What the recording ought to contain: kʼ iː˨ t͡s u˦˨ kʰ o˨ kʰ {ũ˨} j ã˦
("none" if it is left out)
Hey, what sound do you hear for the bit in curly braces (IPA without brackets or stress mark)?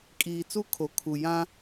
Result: u˨